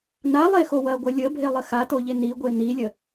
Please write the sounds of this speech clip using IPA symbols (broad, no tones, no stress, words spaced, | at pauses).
nalˠexo wɐɡʷɐ lʲəbʱelˠə xatoʎe niɡʷe nilʲə